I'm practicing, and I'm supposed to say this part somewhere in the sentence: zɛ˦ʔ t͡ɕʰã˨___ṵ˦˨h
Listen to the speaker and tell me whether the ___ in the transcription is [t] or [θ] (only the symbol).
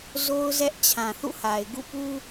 θ